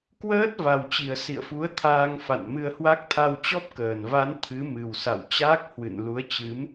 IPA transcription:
k w əː˦˥ t̚ v a˨˩ w t͡ɕ i˨˩ ə̯ s ḭ˧˨ ə̯ f u˨˦ ə̯ t̪ʰ aː˧ ŋ f a̰˧˨ n m ɨ˧ ə̯ h w a˦˥ k̚ t̪ʰ a˧ w t͡ɕ ɔ˦˥ p̚ k əː˧˩ n v a˨˦ n t̪ʰ ɨ˨˦ m ɨ˨˩ w s a̰˧˨ w t͡ɕ aː˦˥ k̚ h w ɨ̰˧˨ n l u˨˦ ə̯ t͡ɕ ɨ˨˦ m

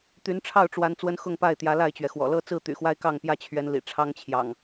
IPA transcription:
t̪ y˨˦ n ʈ͡ʂʰ ɑ˥˨ ʊ̯ ʈ͡ʂ w a˨˦ n t͡s w ə˦ n x ʊ˥˨ ŋ p a˥˨ ɪ̯ t̪ j ä˨˦ l a˥˨ ɪ̯ t͡ɕ ɥ ɛ˩ x w ɔ̰˨˩ l ɤ˥˨ t͡s ɹ̩˥˨ t̪ y̰˨˩ x w a˦ ɪ̯ k ɑ˥˨ ŋ p j ä˥˨ t͡ɕʰ ɥ ɛ˨˦ n l ḭ˨˩ ʈ͡ʂʰ ɑ˦ ŋ t͡ɕʰ j ɑ̰˨˩ ŋ

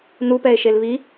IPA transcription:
n u p ɛ e̯ ʃ e l β i

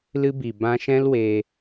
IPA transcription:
l ɨ˧ b i˨ b ã˧ ʃ ɛ̃˦ l w e˧

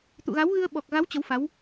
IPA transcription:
t̪ ṵ˧˨ ɣ a˨˦ w ɣ ɨ˧ ə̯ ɓ ɔ˨˩ k̚ ɣ a˨˦ w t͡ɕ ə˨˦ w f a˨˦ w

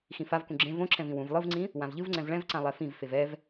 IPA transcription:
x ĩ f a v k ũ ɡ͡ǁ ẽ v õ ǁʰ ɛ̃ v ĩ w ũ v lˠ ɯ v ŋ͡ǀ ĩ | w ã v ʎ ɯ v ŋ͡ǀ ɛ̃ v ɭ ɛ̃ v ǀ ã lˠ ɛ f ĩ v f e v ɛ v

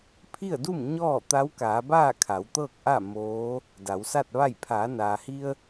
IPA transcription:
pʰ i˥˨ ə̯ d u˥˨ m ɲ ɔː˥˨ t̪ a˧˥ w k aː˩˧ b aː˥˨ kʰ a˩˧ w t̪ ɤː˥˨ k̚ ʔ a˥˨ m oː˧˥ | d a˩˧ w s a˥˨ t̚ ʋ a˥˨ j pʰ aː˩˧ n aː˩ h i˧ ə̯

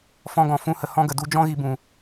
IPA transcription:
f ɔ̃˧ ɡ ɔ̃˨ f ũ˧ h ə˨ h ɔ̃˧ ɡ ə˨ d u˧ d͡ʒ ɔ̃˦ ɣ i˧ b ũ˨

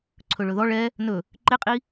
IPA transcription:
ǀʰ ɵ ɭ ɵ ð ɔ ɭ ɛ | n ɵ | ǃ e qʼ i

